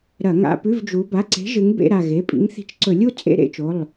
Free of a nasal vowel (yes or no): yes